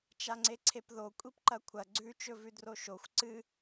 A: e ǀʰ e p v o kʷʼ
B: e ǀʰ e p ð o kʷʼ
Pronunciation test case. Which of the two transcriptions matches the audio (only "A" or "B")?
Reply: B